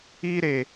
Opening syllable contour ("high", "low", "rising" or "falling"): high